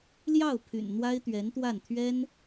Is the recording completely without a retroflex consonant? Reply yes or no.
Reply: yes